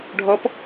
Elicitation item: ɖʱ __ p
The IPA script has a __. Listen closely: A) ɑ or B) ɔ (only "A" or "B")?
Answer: B